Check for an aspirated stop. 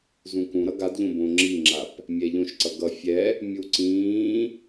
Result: absent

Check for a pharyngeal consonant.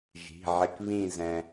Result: present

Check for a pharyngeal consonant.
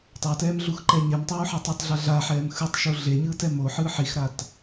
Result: present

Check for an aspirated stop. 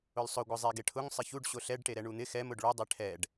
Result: present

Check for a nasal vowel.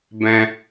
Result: present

